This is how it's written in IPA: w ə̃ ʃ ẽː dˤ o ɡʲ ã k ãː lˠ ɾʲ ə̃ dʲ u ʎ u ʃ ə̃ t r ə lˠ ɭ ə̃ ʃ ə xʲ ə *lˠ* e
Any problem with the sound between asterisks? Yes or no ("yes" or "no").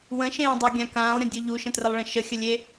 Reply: yes